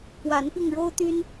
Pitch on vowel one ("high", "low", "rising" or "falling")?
rising